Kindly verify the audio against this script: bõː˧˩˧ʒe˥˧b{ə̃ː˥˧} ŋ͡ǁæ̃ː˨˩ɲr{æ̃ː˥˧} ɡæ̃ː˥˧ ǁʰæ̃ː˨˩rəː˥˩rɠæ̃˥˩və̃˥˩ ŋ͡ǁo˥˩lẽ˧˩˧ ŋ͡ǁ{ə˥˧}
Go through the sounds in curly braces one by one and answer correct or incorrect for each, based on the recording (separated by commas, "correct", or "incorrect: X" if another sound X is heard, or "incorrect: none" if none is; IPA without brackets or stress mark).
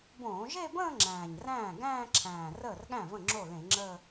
correct, incorrect: æ̃ː˥˩, incorrect: əː˥˧